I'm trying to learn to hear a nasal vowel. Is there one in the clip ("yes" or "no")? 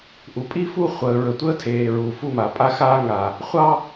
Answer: no